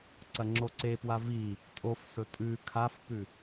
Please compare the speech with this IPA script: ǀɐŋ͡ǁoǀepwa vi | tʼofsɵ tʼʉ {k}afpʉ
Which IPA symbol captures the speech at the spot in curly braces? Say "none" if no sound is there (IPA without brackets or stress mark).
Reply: kʰ